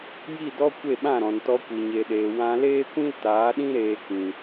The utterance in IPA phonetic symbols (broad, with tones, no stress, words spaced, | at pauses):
ji˦˨dɔ˦ kʷe˦˨ɓã˦˨ɾɔ̃˨n tɔ˧kʷi˨ɲe˨ɗeː˨ wã˧ leː˦kʷĩ˦ltaː˨˦ɗĩ˦ ɾeː˧kĩ˨